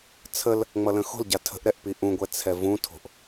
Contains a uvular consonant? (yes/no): no